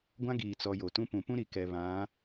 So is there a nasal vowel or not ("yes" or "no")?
yes